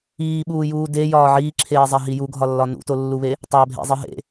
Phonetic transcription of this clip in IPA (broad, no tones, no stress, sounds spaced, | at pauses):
iː ɓ uː j uː d e j ɒː ʕ iː ǁʰ eː zˤ æ ɦ i j u ɡʱ ɒ lː ɒ n ṵ t o lː u β e | tˤ æ bʱ ḛ zˤ i ɦ ḛ